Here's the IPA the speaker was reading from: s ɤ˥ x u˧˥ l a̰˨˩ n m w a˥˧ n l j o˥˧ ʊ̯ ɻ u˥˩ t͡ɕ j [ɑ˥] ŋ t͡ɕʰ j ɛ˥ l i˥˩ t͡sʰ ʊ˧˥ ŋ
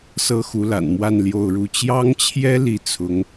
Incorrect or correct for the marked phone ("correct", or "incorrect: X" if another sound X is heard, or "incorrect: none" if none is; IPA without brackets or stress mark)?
correct